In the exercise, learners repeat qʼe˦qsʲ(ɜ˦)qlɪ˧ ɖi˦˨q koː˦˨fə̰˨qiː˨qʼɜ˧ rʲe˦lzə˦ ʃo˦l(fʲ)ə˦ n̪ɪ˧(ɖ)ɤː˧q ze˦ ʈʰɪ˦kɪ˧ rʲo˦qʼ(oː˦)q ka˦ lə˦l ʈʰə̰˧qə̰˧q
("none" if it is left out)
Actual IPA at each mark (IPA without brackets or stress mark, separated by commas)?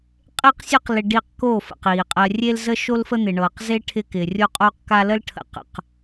ɜ˦, f, ɳ, oː˦